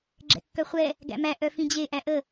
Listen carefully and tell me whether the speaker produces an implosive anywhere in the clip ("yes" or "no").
no